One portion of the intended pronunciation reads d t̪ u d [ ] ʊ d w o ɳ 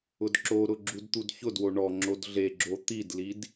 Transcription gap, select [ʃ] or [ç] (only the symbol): ç